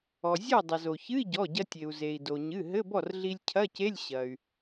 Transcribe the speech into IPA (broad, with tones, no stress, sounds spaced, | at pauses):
ɔ˩ zʲ ɔ˥˩ dˤ ɐ˩ z o˩ ç ɨ˧˥˧ i̯ ɟ ɔ˩˧˩ ɟ ɐ˧ tʲ e˩ u̯ z e˩ i̯ d o˩ ɲ ɨ˩˧˩ ɦ ɘ˧˥˧ b ɔ˥˩ r ɮ i˧ lʲ cʰ ɐ˧˥˧ c e˧˥˧ lʲ ɕ ɐ˩ y̯